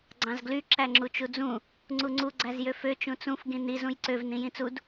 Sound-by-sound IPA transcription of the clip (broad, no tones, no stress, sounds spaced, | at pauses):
ɡ͡ǀ ɑ̃ z ɡ l y ǁ æ ŋ͡ǁ u t͡ʃ u d͡z ũ | ŋ͡ǀ u ŋ͡ǀ u ɡ͡ǀ æ z j ø f ø t͡ʃ ũ t͡s ũ f ɡ ĩ n i z ũ j ǀ ø v n ĩ j ĩ t͡s u d